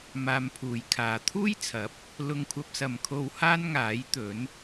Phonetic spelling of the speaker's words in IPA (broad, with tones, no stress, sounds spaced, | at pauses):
m aː˧ m pʰ uː˨˧ j kʰ aː˨˧ t̪ʰ uː˥ j t͡sʰ ɐ˨˥ p̚ | l ʊ˧ ŋ kʷʰ ɐ˧ p̚ s ɐ˨ m kʰ o˧ w h aː˥ n ŋ aː˨˥ j t̪ ɵ˨˥ n